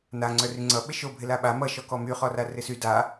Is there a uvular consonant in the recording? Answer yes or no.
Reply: yes